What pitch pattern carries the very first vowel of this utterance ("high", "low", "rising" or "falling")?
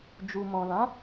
low